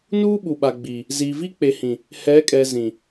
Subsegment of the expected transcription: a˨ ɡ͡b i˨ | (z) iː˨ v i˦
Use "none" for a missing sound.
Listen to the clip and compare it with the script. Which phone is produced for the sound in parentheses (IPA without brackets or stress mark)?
z